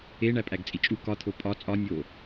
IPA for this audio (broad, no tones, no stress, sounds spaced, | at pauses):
e ɳ æ pʼ æ ɡ t͡sʼ i t͡ʃʼ u k ɒ t̪ʰ o pʼ ɒ t͡sʼ ɒ nʲ o